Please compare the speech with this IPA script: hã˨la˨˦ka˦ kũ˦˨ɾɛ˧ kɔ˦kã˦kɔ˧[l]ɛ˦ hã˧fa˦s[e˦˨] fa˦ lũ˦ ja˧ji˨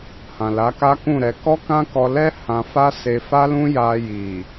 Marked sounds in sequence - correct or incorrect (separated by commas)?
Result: correct, incorrect